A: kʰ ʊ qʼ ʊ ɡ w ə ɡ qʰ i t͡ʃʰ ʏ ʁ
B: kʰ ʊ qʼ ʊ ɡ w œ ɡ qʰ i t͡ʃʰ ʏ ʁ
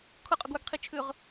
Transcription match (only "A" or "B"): B